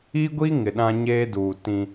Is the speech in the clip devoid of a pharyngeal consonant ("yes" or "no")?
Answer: yes